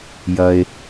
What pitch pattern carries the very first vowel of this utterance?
low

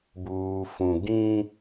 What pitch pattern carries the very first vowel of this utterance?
low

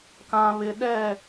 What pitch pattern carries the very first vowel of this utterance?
low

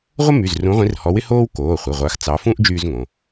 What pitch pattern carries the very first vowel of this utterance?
high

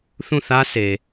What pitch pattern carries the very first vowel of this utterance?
falling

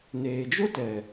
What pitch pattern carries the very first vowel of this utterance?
low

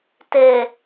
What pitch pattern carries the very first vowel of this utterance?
low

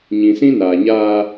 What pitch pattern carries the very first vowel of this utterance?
low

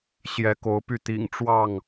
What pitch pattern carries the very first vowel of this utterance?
rising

